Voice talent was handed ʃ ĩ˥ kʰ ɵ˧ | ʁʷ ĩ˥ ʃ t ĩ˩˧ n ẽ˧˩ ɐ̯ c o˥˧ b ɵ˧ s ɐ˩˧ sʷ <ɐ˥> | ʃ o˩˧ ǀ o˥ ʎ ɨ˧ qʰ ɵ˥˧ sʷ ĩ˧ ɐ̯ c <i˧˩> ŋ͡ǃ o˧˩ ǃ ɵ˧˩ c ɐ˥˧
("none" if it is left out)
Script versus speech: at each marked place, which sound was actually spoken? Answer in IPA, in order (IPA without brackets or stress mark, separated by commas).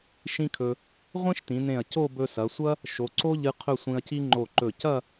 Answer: ɐ˥, i˥